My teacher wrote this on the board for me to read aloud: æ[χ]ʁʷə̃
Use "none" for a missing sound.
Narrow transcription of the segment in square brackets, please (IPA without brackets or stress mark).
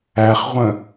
χ